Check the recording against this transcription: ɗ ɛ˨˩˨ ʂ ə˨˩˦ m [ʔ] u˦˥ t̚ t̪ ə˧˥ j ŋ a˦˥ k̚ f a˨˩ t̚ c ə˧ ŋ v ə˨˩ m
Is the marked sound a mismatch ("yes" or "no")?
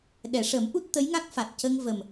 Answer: no